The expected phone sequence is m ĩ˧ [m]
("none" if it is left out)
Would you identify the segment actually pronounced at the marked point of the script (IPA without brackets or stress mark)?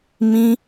none